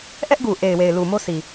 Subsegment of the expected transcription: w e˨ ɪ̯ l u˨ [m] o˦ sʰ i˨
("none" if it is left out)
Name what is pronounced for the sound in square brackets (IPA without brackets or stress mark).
m